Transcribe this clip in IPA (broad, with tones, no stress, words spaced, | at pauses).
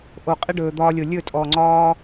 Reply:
ʔo˨qʼɪ˦ ɖɵː˨d̪ɒː˧lʲo˨ lʲɵ˦˨ tʼɔ˨ ŋ͡ǀɒː˦